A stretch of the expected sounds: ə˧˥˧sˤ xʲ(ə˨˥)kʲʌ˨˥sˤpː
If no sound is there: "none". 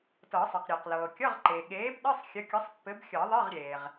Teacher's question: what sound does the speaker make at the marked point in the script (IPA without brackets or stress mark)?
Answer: ə˨˥